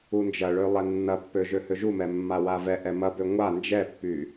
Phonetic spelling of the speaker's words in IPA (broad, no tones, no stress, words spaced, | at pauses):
und͡ʒɐɭø lˠɛnːɐpːø ʒøhøʒumɛ mːawavɛʔɛ mɐbø ŋʷa nd͡ʒɛpːy